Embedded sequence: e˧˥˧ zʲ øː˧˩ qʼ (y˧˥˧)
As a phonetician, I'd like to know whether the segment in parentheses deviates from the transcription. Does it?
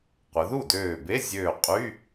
no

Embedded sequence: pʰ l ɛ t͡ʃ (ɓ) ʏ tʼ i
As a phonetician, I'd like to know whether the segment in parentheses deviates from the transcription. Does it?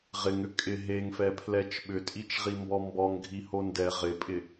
no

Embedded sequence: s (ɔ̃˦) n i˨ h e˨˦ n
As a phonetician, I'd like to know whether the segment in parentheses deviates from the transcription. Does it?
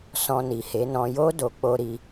yes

